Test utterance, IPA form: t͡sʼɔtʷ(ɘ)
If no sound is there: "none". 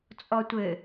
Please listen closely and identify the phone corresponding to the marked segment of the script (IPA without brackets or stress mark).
ɘ